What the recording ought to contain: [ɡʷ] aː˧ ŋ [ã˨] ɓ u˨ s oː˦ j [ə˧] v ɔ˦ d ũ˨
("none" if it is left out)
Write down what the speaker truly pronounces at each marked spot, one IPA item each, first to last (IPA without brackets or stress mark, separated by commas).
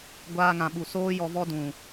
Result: ɡʷ, ã˨, ɔ˧